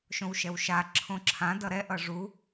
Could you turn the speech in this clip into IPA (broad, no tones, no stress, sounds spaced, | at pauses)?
ʃ õ w ʃ ɛ w ʃ a ǁʰ õ ǁʰ ã d ʌ ɾ ɛ ʔ ʌ ʐ u